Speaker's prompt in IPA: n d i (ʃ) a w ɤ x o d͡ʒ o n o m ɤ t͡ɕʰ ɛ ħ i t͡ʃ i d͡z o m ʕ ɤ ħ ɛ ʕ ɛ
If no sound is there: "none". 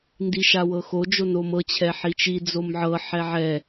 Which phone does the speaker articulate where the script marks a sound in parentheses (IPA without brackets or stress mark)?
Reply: ʃ